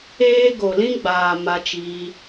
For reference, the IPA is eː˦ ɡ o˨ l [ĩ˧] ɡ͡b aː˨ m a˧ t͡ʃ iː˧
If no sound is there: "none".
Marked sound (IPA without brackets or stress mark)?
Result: ĩ˧